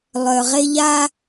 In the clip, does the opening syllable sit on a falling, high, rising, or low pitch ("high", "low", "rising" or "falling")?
low